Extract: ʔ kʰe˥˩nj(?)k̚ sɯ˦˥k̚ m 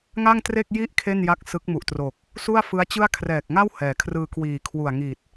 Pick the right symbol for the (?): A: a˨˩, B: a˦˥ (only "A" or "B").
B